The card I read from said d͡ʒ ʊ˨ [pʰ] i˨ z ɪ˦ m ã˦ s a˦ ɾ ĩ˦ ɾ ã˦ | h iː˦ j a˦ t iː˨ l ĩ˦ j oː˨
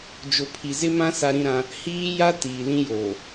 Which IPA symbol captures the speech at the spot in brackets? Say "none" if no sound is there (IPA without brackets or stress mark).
pʰ